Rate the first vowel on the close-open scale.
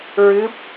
close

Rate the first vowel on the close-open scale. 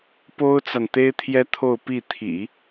mid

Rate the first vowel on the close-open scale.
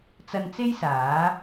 open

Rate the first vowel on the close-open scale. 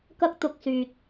open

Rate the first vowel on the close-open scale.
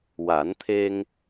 open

